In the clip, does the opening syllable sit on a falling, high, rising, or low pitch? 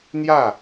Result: falling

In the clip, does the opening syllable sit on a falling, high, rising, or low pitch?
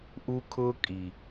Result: high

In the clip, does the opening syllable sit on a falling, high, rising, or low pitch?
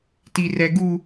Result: high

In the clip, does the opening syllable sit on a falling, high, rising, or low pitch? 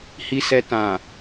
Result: low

